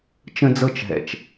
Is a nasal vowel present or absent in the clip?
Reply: present